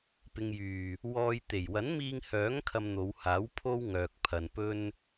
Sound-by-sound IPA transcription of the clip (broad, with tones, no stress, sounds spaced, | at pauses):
p ɪ˨ ŋ j yː˨˩ | w ɔː˧ j t̪ e˨˩ j w ɐ˨˥ n m iː˧ ŋ h œː˨˥ ŋ kʰ ɐ˧ m n̪ o˨˧ w h aː˨˥ w pʰ o˥ w ŋ œː˨ k̚ pʰ ɐ˨ n p ɵ˥ n